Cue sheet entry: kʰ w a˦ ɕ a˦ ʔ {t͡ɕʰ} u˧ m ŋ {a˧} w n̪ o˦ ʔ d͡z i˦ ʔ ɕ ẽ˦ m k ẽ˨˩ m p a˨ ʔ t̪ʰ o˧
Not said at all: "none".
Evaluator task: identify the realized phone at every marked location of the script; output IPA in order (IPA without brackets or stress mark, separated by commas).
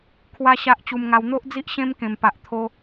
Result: t͡ɕ, a˧